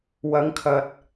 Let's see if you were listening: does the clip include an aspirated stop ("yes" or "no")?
yes